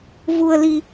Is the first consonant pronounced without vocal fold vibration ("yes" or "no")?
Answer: no